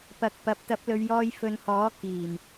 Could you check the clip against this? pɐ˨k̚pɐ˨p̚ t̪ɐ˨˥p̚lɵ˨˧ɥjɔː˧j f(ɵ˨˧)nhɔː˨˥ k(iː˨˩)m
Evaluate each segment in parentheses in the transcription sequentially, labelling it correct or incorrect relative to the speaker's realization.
correct, correct

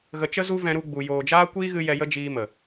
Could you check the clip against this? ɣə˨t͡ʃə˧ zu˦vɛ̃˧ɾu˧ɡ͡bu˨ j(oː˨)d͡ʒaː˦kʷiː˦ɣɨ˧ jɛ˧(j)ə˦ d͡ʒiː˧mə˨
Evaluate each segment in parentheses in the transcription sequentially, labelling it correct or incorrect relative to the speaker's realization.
correct, correct

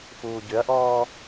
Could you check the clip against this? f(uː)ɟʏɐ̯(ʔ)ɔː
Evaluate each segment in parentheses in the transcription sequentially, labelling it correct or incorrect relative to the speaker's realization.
correct, correct

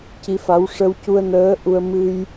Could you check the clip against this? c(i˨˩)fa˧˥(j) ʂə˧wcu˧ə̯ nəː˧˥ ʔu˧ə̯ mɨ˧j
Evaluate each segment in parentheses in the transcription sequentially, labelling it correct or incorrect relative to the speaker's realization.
incorrect: i˧˥, incorrect: w

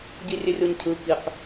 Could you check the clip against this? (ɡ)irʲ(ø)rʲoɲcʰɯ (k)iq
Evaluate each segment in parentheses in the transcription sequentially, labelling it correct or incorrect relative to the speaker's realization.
incorrect: ɟ, correct, correct

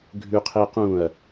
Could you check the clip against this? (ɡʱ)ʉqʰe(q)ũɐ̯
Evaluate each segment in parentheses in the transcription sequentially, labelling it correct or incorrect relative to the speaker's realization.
correct, correct

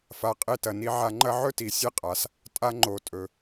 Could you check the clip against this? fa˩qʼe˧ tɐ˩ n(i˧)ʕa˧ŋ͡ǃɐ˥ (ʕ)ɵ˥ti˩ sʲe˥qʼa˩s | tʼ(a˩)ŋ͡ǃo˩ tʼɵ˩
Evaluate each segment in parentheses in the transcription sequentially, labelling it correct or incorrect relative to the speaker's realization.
correct, correct, incorrect: a˧

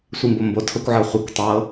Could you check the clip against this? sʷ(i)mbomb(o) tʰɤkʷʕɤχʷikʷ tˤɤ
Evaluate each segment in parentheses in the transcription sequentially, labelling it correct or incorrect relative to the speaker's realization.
correct, correct

